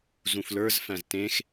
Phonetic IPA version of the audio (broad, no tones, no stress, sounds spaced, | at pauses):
z ũ f l ə˞ z f æ̃ z t ẽ x